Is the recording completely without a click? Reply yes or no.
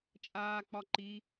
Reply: no